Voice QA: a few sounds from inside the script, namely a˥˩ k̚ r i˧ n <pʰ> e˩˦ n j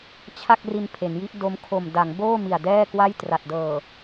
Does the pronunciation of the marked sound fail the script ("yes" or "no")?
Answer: no